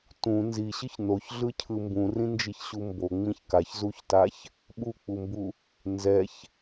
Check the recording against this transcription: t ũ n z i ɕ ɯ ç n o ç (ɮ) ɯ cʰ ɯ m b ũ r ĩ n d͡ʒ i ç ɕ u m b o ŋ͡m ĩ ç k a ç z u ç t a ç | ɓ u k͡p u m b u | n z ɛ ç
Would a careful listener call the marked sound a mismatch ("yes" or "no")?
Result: no